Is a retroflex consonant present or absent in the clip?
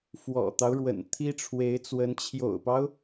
present